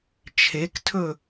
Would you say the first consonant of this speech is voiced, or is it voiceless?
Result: voiceless